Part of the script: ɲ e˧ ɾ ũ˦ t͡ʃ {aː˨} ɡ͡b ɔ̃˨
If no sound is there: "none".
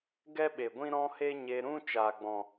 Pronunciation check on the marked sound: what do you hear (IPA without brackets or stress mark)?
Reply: aː˨